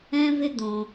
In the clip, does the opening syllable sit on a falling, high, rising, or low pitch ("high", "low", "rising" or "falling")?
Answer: high